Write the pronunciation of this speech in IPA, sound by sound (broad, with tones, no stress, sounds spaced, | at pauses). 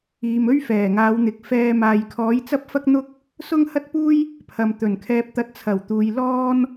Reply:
iː˨ m ɵ˥ ɥ f ɛː˨˩ ŋ aː˨˧ w n̪ ɪ˨ k̚ f ɛː˧ m aː˨ j kʰ ɔː˨˥ j t͡s ɐ˥ p̚ f ɐ˥ k̚ n̪ ʊ˥ k̚ | s ʊ˥ ŋ h ɐ˥ t̚ p uː˥ j | pʰ ɐ˨ m t̪ ɵ˨˩ n kʰ ɛː˧ p̚ t̪ ɐ˧ t̚ t͡sʰ ɐ˨˩ w t̪ uː˨ j l ɔː˥ n